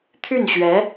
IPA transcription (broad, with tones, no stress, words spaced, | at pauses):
t̪ʰy˥˩nɕɥɛ˧˥